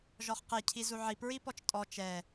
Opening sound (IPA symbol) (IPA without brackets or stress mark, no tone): ʒ